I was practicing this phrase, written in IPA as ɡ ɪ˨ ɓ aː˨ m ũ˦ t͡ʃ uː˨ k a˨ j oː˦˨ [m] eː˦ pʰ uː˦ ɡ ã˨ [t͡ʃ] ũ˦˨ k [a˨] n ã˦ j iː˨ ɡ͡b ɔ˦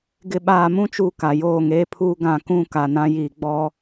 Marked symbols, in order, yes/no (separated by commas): no, no, yes